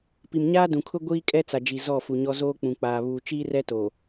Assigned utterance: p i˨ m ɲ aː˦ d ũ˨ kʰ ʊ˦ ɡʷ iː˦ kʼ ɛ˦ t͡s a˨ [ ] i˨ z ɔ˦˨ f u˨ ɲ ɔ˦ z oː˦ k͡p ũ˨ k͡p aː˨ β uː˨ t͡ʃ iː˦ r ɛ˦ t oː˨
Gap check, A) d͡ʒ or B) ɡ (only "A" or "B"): A